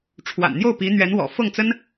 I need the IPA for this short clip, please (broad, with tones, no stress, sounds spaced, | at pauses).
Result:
ʈ͡ʂʰ w a̰˨˩ n n̪ j o˥˩ ʊ̯ p i˧˥ n̪ ɥ ɛ˧˥ n w ɔ̰˨˩ f ɤ˥˩ ŋ t͡s ə˥ n